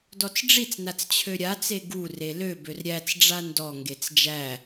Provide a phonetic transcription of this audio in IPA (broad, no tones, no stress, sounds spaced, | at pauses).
d ɔ t͡s ɖ͡ʐ i t͡s n a t͡s t͡ɕʰ ø ɾʲ a t͡s e ɡ u r e l ø b ø r ɾʲ æ t͡s ɖ͡ʐ a n d ɔ ŋ ɡ e t͡s d͡ʒ æ